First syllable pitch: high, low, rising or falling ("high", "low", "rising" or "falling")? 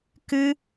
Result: high